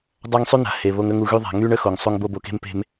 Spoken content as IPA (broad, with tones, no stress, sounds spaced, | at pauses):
dˤ a˦ ŋ sˤ y˦ n̪ a̤˨ h e˨ β o˧ ŋ ə˦ ŋ u˧ ɣ y˦ ðˤ a̤˨˦ ŋ y˦ ɳ ə˦ x o˨ ŋ sˤ u˧ ŋ b o˧ b o˧ k e̤˦ m p e̤˧ m